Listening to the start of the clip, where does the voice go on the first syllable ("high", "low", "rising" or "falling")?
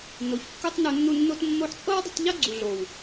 low